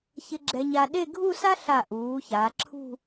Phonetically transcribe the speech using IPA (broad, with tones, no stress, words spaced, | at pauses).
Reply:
çɪ˧ ɡ͡ǁɛ˧ɲa˧ ɗe˥˧ ɡʱu˥˧sa˥ɬa˧˩ʔuː˩˧ ça˩˧ǁʰṳ˥˧